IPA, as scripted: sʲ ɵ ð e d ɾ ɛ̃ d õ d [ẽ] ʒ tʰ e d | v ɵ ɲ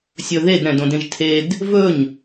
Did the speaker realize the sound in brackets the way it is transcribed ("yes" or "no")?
yes